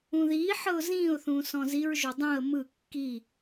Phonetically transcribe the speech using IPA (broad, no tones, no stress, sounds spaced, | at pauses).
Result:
ũ ð iː ħ ɤ ʊ̯ z ĩː ʊ̯ θ ũː s ɔ̃ z i ɹ ʒ o dˤ ũ ə̯ m ɯ kː i